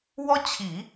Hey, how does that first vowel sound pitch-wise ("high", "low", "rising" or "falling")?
high